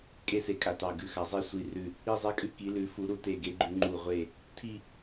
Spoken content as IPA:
kʼ e˥˧ s e˧˩ kʼ a˧˩ t ɑ˧˩ ɡ ʉ˧˩ x a˧˩ zˤ e˥˧ sʷ i˧˩ r ʉ˧˩ | i˥˧ zˤ e˥˧ kʼ ʉ˥˧ k i˨˦ l ʉ˨˦ f u˨˦ ɾ u˨˦ t e˧˩ ɡ e˨˦ ɡ͡ǃ ʉ˨˦ ŋ͡ǃ u˧˩ ʁʷ e˧˩ | tʰ i˥˧

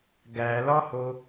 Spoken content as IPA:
ɡ æ l ɒ h o

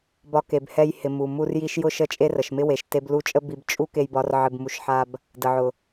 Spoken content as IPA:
b ɒ˧ k e˨ b h ɛ˧ j h ɪ˨ m u˨ m u˧ r j i˧ ʃ j ʊ˦ ʃ ə˦˨ t͡ʃʼ e˦ r ə˨ ʃ m ɪ˦ w e˨ ʃ t e˧ b l u˦˨ t͡ʃʼ ə˦ b i˧ b t͡ʃʼ u˦ k e˧ j b ɒ˧ r ʕ ɪ˧ b m u˧ ʃ ħ a˦ b | d ə˨ ʕ ʊ˨

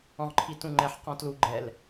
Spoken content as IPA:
ɔ̃ ʁ ǃʰ i t ũ ŋ͡ǃ ɛ ħ q ɔ̃ t l u ɡ͡ǃ ɛ l

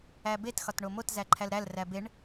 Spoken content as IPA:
æ b e t x ɒ t ɳ o m o t z æ ǃʰ æ l ɾ æ l r æ b e ɳ

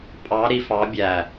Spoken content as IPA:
pʼ ɑ˧˥ ɾ i˧˥ f ɑ˧˥ bʲ æ˧˩

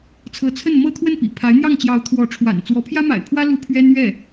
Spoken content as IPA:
t͡sʰ ɤ˧˥ t͡sʰ ə˥˩ n m ɤ˥ t̪ʰ w ə˥˩ n p ḭ˨˩ pʰ a˧˥ ɪ̯ n̪ j ɑ˥˩ ŋ t͡ɕ j ɑ˧˥ ʊ̯ t̪ʰ w ɔ˧˥ ʈ͡ʂʰ w a̰˨˩ n t͡s w ɔ˧˥ pʰ j ä˥ m a̰˨˩ ɪ̯ pʰ w ä˥ l u˥ pʰ ɥ ɛ˥ n ɥ ɛ˥˩

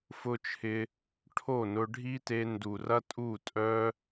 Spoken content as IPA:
f ʊ˦ t͡ʃʰ ɪ˧ | ʈʰ o˦˨ n ʊ˧ ɖʱ i˦ t e˧ n d u˨ r ɐ˦ tʼ u˦˨ tʼ œ˧

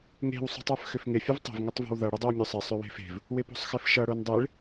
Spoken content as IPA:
ŋ e̤ w sˤ ṳ tˤ ə˞ f x ʏ f ŋ ɪ fʲ ə v tˤ ə̤ v ŋ ɪ tˤ v o̤ w ð ʌ ɽ ɪ dˤ ʏ w mʲ u sˤ ɪ sˤ ʏ w e̤ f e̤ v | w ɪ p o̤ sˤ x ɪ f ʃ ʌ ɽ o n dˤ e ɭ

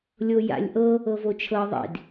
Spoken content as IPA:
lʲ o j a̰ lʲ ʔ ɤ | ɤ v o t͡ʃʰ ɤ ðˤ ḭ d

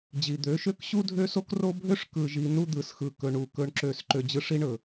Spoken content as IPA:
d͡ʑ i˨ d̪ ø˨˦ ʃ ø˦ k ɕ u˦ dʱ ø˦ s o˦ k r o˦ bʱ ø˦ ʂ k ɯ˨ ʒ i˨ n u˦ d̪ ɯ˨ s x ɯ˨ k ɵ˨ ɳ u˨ k ɵ˦ ɳ ǁ ø˦˨ s ǃ ø˦ d͡ʑ ɯ˦ ʂ i˦ ɳ ɵ˨

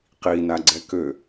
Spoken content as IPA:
q i n a ɡ͡ǀ ɛ k ø

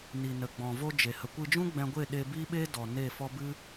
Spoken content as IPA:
n i˨ n ə˨ ɡ͡b ɔ̃˨ v o˧ d͡ʒ e˨ h ə˨ kʷ ɨ˧ d͡ʒ ũ˦ ɡ͡b ɛ̃˧ ɡʷ e˦˨ ɗ e˧ b i˦ ɓ e˦ d ɔ˨ n e˦˨ f ɔ˦ b ɨ˦

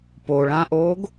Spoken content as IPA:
p o ɭ ã ʔ oː ɡ

